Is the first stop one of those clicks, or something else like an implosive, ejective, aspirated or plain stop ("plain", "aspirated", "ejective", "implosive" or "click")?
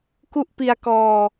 plain